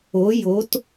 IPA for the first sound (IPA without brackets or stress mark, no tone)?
o